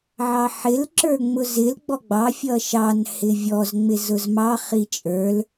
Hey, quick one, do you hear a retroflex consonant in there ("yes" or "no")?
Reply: no